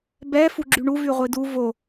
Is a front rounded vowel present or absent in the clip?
present